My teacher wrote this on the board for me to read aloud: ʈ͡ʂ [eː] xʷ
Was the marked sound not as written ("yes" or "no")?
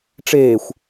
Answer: no